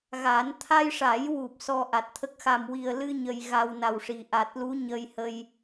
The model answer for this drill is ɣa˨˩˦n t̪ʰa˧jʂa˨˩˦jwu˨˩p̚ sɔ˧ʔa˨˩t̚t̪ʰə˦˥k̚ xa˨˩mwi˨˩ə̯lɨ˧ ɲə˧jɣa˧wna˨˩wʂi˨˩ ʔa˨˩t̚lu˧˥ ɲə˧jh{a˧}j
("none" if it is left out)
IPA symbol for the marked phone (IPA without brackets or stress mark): ə˧